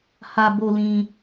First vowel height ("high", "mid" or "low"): low